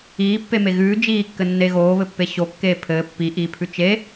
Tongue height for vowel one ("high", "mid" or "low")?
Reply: high